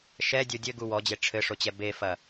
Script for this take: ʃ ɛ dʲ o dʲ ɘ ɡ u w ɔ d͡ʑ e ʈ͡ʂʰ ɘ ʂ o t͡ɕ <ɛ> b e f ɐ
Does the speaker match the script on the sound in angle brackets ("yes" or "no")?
yes